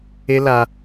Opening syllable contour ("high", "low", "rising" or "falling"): high